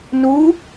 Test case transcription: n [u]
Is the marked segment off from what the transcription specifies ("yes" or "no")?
no